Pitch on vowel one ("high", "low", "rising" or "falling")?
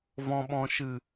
low